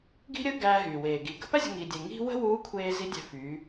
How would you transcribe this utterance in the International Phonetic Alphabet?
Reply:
ɡ i̤˥ ɾʲ əː˥ ɡ æː˧ ɦ yː˩ w eː˩ ɡ i˩˧ ɡ ə̤˧˥ p æ˥ zʲ ə̤˧ ŋ i˧ dʲ e˧ ŋ i̤˥ w ə̤˥ w uː˧˥ kʷʰ eː˧ z i˧˥ dʲ æ̤˧ f yː˩˧

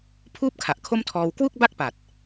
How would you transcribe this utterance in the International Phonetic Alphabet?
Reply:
pʰ uː˥˩ p̚ kʰ a˨˩ ʔ kʰ o˥˩ m tʰ ɔː˧ w k w u˥˩ k̚ b a˥˩ k̚ p a˨˩ t̚

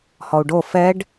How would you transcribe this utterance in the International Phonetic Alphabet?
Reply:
h ɔ u̯ ɖ o f ɛ ɖ

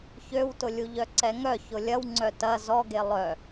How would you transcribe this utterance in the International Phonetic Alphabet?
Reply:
ç ø w t ʊ lʲ u ʎ œ ǀ ɛ ŋ œ ç ʊ lʲ ɐ w ŋ͡ǀ œ t ɐ z ɔ ɡ e lˠ œ

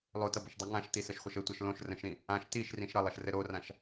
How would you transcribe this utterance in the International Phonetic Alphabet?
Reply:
lˠ o t ʌ b ə ʃ dˤ i ŋ ã ʃ t i s ə ʃ χʷ ə ʃ ɘ tʷ ʌ ʃ l õ ʃ r ə̃ ʃ ɾ ĩ | ã ʃ t i ʃ r ĩ ʃ ɾ ʌ lˠ ʌ ʃ r ɘ ɾ o r ã ʃ

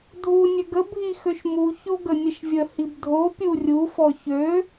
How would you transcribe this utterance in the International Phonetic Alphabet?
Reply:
dʱ u nʲ ø ɡ ə bʱ i x ø ʃ m u ç o ɡ ə nʲ ə ʃ vʲ ə h i b dʱ o pʲ u rʲ u f ɔ ç ø

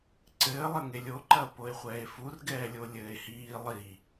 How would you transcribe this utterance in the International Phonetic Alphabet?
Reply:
ǀ ɘː lˠ ɐ ŋ e lʲ o ǃ ɐ o̯ p o e̯ χʷ ɛː e̯ f u r ɡ ɛː lʲ o lʲ ɘː e̯ h iː lˠ i

